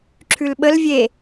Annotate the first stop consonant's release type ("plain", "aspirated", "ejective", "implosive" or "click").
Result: click